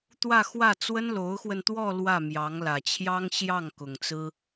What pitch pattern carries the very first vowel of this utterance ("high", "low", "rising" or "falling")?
falling